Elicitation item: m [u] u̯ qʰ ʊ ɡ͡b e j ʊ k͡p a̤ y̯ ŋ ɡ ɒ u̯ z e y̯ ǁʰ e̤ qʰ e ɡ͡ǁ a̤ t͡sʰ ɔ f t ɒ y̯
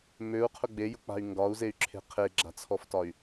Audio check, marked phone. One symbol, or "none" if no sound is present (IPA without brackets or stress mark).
ø